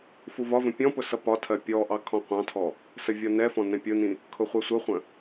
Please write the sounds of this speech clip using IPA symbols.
fuvɒvə̃ pʲɔ̃pʊ sʌpɒtʰɜ pʲɔʔɑ kʰɔ̃qʷɑ̃tʰɔ | səvʲɔnɛfɔ̃ nɛ̃pʲʊnĩ | kʰʊχʷɛsʷəχʷə̃

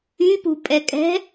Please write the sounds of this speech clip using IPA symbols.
ypṳpʼɛkʼɛ̤

